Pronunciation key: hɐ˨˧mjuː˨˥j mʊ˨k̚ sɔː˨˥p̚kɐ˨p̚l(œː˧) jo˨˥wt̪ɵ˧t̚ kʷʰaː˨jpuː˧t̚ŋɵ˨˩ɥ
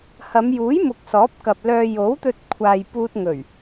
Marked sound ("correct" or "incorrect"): correct